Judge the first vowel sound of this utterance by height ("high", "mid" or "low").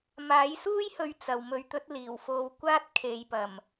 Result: low